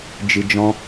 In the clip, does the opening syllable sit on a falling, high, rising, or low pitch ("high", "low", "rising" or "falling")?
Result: low